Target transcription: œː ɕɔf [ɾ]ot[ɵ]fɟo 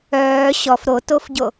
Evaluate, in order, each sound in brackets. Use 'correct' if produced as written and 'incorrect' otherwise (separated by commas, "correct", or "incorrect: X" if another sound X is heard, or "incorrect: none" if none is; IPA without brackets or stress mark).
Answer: correct, incorrect: o